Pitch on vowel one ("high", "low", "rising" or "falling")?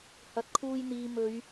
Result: low